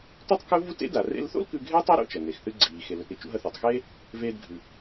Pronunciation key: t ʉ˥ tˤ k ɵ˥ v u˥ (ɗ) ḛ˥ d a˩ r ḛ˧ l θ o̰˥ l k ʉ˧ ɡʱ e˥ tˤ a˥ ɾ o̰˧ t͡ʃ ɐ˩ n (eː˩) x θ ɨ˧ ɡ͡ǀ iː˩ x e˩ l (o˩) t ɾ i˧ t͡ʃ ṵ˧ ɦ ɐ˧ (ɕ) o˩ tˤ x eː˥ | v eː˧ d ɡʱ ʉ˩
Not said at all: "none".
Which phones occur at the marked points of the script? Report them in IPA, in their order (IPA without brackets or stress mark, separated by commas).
t, e˩, ɵ˩, θ